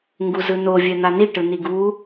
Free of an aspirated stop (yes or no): yes